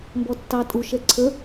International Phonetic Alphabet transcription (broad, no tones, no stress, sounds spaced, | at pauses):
m b ɔ tː ɑ tʼ u ʃ ɛ ǀʰ ə